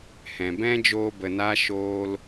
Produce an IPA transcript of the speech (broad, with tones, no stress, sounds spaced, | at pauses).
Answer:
h ɛ̃˨ b ɛ̃˦ d͡ʒ oː˧ b ə˨ n a˦ ʃ oː˧ l